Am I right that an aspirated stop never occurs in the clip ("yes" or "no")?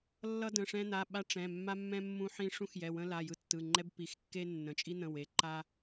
yes